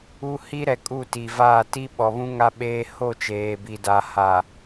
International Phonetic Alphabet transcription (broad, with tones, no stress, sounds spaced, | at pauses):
u˦ h i˦ ɾ ɛ˨ kʼ u˦˨ t i˨ v aː˦˨ t i˦ ɓ ɔ˨ β ũ˦ ŋ a˦ ɓ eː˦ h o˦˨ t͡ʃ eː˨ b i˨ d a˨ h a˨